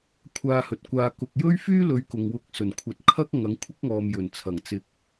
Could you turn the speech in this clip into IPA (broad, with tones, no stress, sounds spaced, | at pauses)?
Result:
kʷʰ aː˧ h ɵ˨ t̚ kʷ aː˧ k ʊ˨ k̚ j ɵ˥ ɥ f yː˥ l ɵ˨˧ ɥ k ʊ˨ ŋ w ʊ˧ k̚ s ɵ˨˩ n kʷʰ ɐ˨ t̚ kʰ ɐ˥ k̚ ŋ ɐ˨˥ ŋ kʷʰ ɪ˥ k̚ ŋ ɔː˨ m j ɵ˨˩ n t͡sʰ ɐ˨˩ ŋ t͡s ɪ˧ k̚